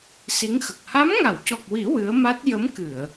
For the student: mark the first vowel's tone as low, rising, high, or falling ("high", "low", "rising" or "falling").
rising